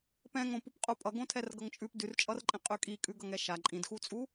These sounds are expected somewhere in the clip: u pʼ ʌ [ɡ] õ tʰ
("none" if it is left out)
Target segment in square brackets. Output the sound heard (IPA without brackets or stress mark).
ɡ